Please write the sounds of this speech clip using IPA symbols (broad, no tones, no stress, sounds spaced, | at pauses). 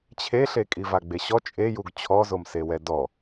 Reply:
t͡ɕʰ e ɬ e kʼ i v a ɡ͡b e ɕ ɔ t͡ʃʼ e j u ɡ t͡ɕʰ ɔ z o m s e w ɛ d ɔ